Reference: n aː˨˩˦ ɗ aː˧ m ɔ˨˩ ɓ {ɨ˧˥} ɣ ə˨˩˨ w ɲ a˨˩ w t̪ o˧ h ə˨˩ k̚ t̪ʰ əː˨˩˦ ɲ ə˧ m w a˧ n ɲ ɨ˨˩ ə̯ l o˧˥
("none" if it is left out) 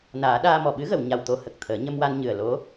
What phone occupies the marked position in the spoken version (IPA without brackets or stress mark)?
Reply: ɨ˧˥